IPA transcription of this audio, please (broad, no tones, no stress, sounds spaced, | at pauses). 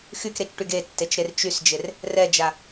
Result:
x y k ɾ e t͡ʃ ʈ y ɡ e tː e t͡ʃ ɾ e r t͡ʃ y s d͡ʒ e r | r ɛ d͡ʒ a